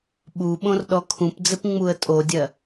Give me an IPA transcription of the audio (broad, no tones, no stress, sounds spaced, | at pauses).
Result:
ɓ u ɓ õ r ɗ ɔ kʰ ũ p d͡z ɘ p ŋ͡m u ə̯ tʼ o dʲ ɜ